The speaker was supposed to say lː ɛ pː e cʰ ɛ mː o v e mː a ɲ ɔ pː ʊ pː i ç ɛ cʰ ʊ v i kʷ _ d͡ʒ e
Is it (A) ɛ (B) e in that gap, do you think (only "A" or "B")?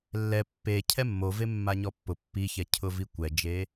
A